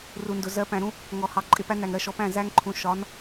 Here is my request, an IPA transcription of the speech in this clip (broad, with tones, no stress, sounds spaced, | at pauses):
r u˨ n d ʊ˨ z ɜ˨˦ p æ̃˨ ɾ ũ˦ | ŋ ɔ˨ h ɑ˨ ǃʼ ɪ˨ p æ˦ n æ˨ ŋ ɾ ɜ˨ ʃ ɔ˦ p æ̃˦˨ z æ˦ ŋ ǃʰ ũ˨ ʃ ɒ˨˦ n